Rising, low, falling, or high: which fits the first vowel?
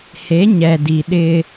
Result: rising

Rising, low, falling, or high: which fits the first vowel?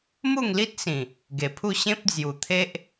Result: falling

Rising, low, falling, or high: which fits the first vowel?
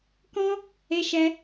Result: high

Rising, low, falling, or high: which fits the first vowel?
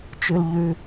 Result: high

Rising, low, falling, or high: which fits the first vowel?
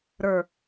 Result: low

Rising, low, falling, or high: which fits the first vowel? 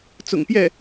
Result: low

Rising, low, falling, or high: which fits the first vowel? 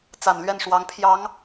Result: low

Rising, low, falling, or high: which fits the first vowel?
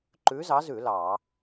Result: rising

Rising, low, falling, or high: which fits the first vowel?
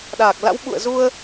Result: low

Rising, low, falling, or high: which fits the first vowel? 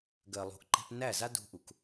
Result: low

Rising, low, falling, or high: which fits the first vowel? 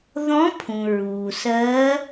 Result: rising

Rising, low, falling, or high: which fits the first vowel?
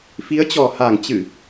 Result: rising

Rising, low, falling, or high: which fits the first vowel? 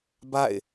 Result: falling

